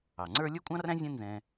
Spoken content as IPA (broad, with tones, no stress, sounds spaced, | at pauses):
ɑ˩ ŋ͡ǀ ə˞˥ lʲ ə˞˥ kʷʼ ɑ̃˥ r æ̃˥ zʲ ɛ̃˥ n z ɛ̃˧